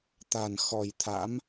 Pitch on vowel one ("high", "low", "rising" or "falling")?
low